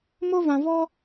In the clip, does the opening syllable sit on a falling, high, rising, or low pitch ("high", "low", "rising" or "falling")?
high